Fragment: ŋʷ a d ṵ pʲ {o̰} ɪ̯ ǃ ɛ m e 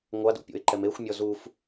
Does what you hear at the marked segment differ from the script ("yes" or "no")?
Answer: no